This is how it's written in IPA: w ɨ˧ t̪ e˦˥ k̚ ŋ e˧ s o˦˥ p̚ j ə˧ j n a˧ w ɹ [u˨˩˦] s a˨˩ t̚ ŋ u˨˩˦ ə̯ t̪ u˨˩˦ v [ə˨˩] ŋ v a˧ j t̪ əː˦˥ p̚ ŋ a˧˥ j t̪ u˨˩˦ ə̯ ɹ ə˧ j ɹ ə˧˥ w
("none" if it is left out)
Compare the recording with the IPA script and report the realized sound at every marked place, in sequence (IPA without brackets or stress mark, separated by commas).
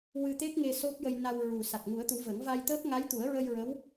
u˨˩, ə˨˩˦